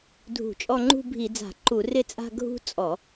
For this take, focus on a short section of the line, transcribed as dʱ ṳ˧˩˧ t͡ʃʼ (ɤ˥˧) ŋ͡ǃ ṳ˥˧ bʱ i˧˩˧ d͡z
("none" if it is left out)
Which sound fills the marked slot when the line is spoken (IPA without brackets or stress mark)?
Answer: ɔ˥˧